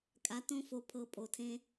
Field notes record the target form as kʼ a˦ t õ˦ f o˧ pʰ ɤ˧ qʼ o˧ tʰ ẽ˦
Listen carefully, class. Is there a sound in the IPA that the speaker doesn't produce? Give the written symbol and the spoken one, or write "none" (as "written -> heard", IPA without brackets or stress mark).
qʼ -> pʼ